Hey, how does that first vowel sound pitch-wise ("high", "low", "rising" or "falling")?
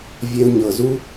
low